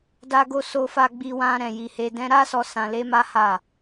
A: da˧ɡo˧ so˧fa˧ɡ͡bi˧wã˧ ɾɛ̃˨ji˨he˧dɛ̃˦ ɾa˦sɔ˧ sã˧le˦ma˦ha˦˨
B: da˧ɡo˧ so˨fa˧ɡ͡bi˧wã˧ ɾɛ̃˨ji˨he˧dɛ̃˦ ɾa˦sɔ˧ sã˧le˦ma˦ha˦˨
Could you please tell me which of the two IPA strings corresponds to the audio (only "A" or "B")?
A